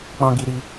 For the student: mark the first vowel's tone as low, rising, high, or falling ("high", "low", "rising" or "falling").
high